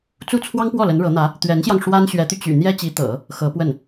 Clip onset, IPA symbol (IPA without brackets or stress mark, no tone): t͡s